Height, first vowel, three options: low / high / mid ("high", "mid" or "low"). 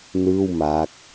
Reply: high